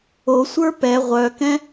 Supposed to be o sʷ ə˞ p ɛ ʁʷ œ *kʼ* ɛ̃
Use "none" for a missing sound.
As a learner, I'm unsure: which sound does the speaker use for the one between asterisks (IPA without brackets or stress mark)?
k